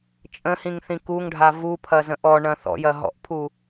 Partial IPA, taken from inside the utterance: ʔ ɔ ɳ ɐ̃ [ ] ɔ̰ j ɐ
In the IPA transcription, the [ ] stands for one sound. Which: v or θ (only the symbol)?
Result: θ